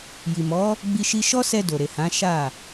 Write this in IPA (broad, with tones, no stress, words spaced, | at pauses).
ji˨mɔ˨˦ | ɡ͡bi˧ʃi˧ ʃɔ˦sɛ˧ do˨ɾe˨hã˨˦ ʃa˦˨